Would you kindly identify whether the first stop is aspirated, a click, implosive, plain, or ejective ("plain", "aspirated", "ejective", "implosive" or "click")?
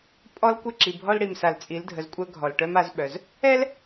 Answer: ejective